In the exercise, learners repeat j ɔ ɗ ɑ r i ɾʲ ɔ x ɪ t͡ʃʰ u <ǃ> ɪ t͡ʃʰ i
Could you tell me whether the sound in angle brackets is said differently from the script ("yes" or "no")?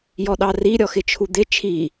yes